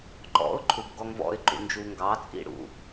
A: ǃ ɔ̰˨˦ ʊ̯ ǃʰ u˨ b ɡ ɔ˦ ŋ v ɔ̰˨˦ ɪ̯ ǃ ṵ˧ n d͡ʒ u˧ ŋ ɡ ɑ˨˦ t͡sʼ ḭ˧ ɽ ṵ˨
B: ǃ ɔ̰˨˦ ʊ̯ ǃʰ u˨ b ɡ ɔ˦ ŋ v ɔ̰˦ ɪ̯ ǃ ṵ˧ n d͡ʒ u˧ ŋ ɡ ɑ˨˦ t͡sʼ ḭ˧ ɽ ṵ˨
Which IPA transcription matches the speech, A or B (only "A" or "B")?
B